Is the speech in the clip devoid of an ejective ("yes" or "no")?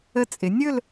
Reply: no